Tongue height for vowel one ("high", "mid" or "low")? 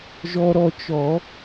mid